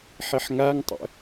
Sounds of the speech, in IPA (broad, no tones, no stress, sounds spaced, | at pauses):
ħ i ħ ŋ a ŋ tˤ ə̰